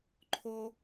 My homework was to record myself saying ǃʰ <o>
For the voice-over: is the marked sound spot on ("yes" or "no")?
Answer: yes